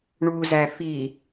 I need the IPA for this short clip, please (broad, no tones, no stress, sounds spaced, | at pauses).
ɳ u z æ f i